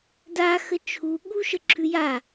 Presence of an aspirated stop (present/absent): present